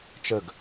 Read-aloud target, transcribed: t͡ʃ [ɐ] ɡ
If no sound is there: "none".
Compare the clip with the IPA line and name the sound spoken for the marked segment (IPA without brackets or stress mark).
ə